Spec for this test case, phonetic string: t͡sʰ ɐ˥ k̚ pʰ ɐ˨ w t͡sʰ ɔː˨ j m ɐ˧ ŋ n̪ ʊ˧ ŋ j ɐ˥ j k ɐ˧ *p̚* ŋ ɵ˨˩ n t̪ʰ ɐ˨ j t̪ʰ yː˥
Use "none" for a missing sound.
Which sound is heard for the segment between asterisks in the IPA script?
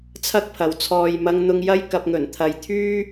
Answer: p̚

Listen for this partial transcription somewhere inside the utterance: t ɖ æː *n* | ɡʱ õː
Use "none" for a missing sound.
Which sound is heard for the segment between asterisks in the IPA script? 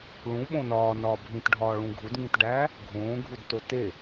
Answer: none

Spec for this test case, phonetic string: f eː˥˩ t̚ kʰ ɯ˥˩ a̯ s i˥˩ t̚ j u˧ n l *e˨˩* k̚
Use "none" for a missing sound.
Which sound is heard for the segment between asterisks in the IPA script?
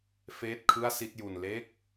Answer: e˦˥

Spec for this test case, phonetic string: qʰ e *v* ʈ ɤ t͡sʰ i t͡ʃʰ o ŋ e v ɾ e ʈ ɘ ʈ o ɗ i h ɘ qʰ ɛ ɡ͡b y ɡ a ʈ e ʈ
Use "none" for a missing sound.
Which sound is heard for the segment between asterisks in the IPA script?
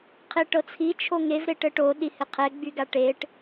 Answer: none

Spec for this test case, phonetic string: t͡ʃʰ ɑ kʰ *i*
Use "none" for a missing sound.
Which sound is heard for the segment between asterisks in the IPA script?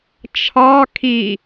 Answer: i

